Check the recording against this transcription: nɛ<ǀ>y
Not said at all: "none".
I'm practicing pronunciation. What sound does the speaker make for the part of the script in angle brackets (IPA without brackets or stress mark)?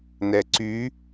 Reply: ǀ